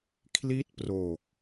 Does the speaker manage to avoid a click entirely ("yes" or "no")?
yes